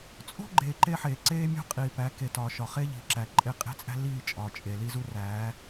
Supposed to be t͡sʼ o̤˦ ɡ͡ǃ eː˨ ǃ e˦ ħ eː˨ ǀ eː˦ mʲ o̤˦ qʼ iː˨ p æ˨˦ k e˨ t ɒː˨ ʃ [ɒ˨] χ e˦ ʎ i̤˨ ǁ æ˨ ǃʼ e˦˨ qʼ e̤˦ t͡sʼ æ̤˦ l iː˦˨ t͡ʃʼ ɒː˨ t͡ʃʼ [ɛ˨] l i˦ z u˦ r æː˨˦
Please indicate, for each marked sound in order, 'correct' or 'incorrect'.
correct, incorrect: e˨

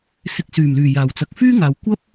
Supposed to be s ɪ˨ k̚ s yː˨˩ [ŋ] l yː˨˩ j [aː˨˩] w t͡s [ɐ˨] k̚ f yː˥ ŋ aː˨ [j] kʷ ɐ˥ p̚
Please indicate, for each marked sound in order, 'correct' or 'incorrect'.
incorrect: m, correct, correct, incorrect: w

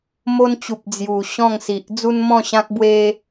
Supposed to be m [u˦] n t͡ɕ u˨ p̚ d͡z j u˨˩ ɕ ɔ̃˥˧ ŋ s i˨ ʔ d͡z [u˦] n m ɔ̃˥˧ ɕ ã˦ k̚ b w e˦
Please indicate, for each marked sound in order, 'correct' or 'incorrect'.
incorrect: o˦, correct

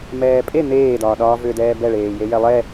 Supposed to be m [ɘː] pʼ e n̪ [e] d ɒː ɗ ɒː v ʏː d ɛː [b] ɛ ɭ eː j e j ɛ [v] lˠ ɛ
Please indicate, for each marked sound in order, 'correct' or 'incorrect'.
incorrect: ɛː, incorrect: eː, correct, incorrect: none

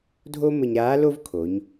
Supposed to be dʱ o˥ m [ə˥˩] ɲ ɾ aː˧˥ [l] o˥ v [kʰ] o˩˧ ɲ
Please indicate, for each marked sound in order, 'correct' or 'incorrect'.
incorrect: ə˧, correct, correct

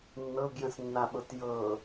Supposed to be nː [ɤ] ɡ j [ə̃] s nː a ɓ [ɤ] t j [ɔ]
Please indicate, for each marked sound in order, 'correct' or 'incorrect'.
correct, correct, correct, incorrect: ɤ

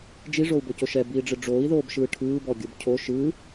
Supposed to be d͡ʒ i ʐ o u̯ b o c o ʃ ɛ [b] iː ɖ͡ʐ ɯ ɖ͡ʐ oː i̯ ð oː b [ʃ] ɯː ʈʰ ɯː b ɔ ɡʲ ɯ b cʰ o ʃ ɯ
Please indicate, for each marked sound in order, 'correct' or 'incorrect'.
correct, correct

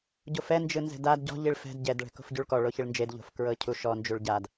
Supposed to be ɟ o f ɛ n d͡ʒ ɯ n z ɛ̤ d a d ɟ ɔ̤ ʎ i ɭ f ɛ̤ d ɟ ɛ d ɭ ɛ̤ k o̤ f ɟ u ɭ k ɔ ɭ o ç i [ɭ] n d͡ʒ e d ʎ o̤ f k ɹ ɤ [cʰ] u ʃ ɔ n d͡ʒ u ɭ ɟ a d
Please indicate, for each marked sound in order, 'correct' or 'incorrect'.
correct, correct

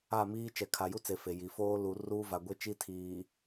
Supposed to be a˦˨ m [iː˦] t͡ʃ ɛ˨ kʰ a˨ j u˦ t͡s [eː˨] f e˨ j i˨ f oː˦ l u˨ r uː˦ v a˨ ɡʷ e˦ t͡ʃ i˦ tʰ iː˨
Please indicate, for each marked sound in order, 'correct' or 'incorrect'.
correct, incorrect: e˨

